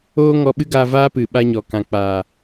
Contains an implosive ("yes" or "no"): yes